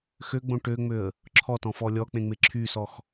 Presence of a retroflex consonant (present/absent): present